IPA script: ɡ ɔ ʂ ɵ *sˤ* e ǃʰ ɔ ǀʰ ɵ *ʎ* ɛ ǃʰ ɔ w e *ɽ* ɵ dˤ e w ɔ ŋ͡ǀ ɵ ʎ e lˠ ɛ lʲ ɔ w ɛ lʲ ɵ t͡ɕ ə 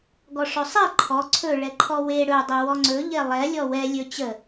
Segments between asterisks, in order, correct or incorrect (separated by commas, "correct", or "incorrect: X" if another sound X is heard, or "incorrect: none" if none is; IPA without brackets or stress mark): correct, incorrect: ɭ, correct